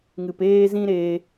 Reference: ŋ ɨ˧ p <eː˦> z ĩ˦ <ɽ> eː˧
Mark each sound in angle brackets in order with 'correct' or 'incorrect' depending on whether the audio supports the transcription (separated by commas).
correct, incorrect